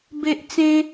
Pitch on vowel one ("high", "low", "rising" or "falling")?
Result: high